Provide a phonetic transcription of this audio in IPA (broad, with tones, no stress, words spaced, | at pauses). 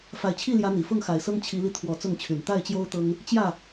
fa˨˩ɪ̯t͡ɕʰi˥˨ljä˨˦ n̪i˨˩ fʊ˥˨ŋxa˨˩ɪ̯sɤ˦ŋ t͡ɕʰi˨˦li˧ t̪ʰwɔ˨˩ t͡sʊ˥˨ŋt͡ɕʰy˨˩n t̪a˥˨ɪ̯t͡ɕjo˦ʊ̯ t̪ɤ˦ŋ | t͡ɕjä˥˨